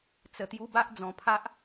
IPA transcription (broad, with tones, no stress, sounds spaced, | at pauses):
t͡s ə˨˩ t̪ j u˧ b a˦ ʔ d͡z ɔ̃˨˩ pʰ a˦ ʔ